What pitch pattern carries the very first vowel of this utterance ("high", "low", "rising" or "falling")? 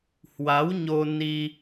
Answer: rising